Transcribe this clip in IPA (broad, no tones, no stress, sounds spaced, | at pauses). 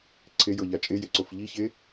ǀʰ e j ɤ ʎ a t͡ʃʼ e j e ǀ o f ʎ i ç e